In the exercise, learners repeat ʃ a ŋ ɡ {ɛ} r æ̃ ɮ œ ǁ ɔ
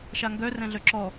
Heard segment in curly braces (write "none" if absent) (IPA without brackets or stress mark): œ